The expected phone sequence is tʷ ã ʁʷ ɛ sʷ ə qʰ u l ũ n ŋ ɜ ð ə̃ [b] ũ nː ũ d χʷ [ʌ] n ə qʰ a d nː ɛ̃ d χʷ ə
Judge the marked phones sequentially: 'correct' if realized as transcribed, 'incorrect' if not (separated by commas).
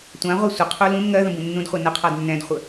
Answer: correct, incorrect